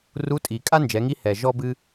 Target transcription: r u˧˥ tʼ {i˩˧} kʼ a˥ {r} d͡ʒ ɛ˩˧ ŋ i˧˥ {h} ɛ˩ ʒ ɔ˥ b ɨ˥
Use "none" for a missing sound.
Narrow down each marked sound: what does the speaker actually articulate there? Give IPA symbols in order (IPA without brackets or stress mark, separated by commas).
i˩, n, h